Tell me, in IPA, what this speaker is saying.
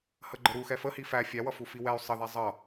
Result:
h ə ɡ͡ǃ ə ɾ u x ɛ f ə h i f æ fʲ æ w ʌ f u f i w ɛ y̯ sˤ ə ð ɛ zˤ ʌ

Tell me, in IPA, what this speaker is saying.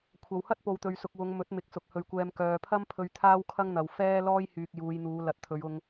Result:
kʷʰ ɐ˨ w h ɐ˥ t̚ p o˨ w t̪ ɵ˨ ɥ s ʊ˨ k̚ w ʊ˨˧ ŋ m ɵ˨˥ t̚ m ɪ˨ k̚ s ʊ˨ k̚ h ɵ˨˩ ɥ kʷ ɛː˨ m k œː˨ pʰ ɐ˥ m pʰ ɵ˧ ɥ t̪ʰ aː˥ w kʰ ɐ˥ ŋ n̪ ɐ˨ w f ɛː˥ l ɔː˥ j h yː˨ k̚ j uː˨˧ j n̪ uː˨˧ l ɐ˨˥ t̚ t̪ʰ ɵ˨˧ ɥ ʊ˧ ŋ

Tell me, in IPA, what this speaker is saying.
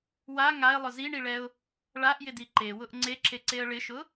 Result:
w a ŋ a ɪ̯ lˠ ʊ z i ɳ i ɭ ɛ ʊ̯ | ɭ a ʔ j ɪ d i ǃ e w ʊ ʔ ŋ͡ǀ e ǁ e ǀ e ə̯ ɭ ɪ ʃ ʊ

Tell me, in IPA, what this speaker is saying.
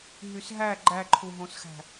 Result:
ɦ y s ɦ æ ɡ͡ǃ æ ǃʰ u ɦ õ s x æ̤

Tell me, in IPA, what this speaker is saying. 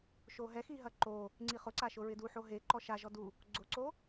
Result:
ʃ o ɦ ɛ x i ɦ ɐ ǃ o | ŋ͡ǀ i χ ʊ ǀ a ʃ ʊ ɹ ɪ d u ħ o ɦ e ǃ ɔ ʃ a ʒ ɔ d u | ɡ͡ǀ ʊ ǀ o

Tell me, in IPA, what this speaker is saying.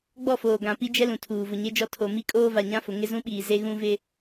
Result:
ɡ͡b ɔ˦˨ f oː˨ ɡ ã˨ p i˦ d͡ʒ ɛ˦ l ũ˨ tʰ uː˨ v ʊ˨ ɲ e˦ d͡ʒ ɔ˦˨ tʰ o˨ m i˦ kʼ oː˦ v a˨ ɲ ã˦ f ʊ˨ ŋ ɪ˦ z ũ˦ ɓ iː˨ z e˦ ɣ ũ˦ v ɪ˦

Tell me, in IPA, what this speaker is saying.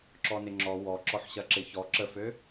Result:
ǁ ɔ n ɪ ŋ͡ǁ ɔ w ɔ ǁ ɔ ħ ɕ ɐ ǁ ɪ ç ɔ ǁ ə f ø

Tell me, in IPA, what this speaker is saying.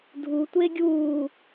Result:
dʱ u tʷ eː ɡʲ uː

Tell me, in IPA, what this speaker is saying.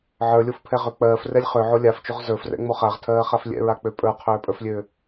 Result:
ʕ ə˞ lʲ o f pʰ ɛ ʁ ø k͡p ɜː f r ɛ lʲ χ ø ʕ o lʲ a f t͡ʃ o ʁ z ə˞ f r ɛ̰ ŋ͡m o χ a ʁ tʰ ɜː χ a f lʲ ɛ̰ ɹ a k͡p ø pʼ ə˞ qʰ øː pʼ ə˞ f lʲ ø

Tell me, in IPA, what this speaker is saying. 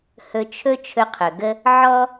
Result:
h ɵ˧ t͡ʃʰ ɵ˥ t͡ʃʰ ɵ˧ qʰ ɵ˩ ɡ ə˥ | ʕ ɔ˥

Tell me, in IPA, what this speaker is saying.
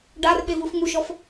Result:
ɖ a r ɓ e v ɯ f ŋ u ʃ ɔ f

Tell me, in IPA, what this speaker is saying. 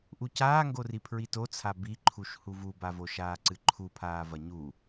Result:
ʔ u c aː ŋ ɡ o r i pʰ ɹ i t o t͡sʰ a b i ǃʰ u ʃ h u v u b a v o ʃ aː ǀ ɨ ǃʰ u pʰ aː v ɐ ɲ u

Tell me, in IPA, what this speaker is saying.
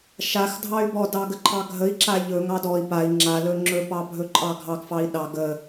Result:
ʃ a x dʱ ɑ y̯ b ɔ d ɑ ɡ ə ǃʰ ɑ ɡʱ ə i̯ ǁ a ʎ ɵ ŋ ɑ d ɔ i̯ p a i̯ ŋ͡ǁ a l ɵ ŋ͡ǁ ɵ p ɑ bʱ ɵ ǃʼ ɑ ɡʱ ɑ ɡ f ɑ i̯ ɗ ɑ ɡ ə

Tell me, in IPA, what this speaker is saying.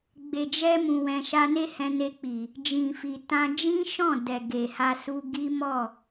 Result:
ɡ͡b e˨ d͡ʒ ɛ˧ m ũ˨ w ɛ̃˨ ʃ a˧ n e˦ h ɛ̃˧ n e˧ k͡p i˨ | d͡ʒ ĩ˨ f i˨ t ã˧ d͡ʒ ĩ˦ ʃ ɔ̃˦˨ d ɛ˨ ɡ e˨ h a˧ s u˧ ɡ i˦ m ɔ˦˨

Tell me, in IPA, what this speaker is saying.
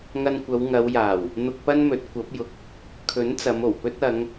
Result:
ŋ ɐ˧ n kʷ ɐ˨˧ w ŋ ɐ˨˧ w j aː˨˩ w | n̪ ʊ˧ k̚ p ɐ˥ n m ɵ˨˥ t̚ kʷ ɐ˨˥ p̚ j ʊ˨ k̚ | kʰ ɵ˨˥ n t͡s ɐ˨˧ m o˨˩ w p ɵ˥ t̚ ɐ˨˧ ŋ

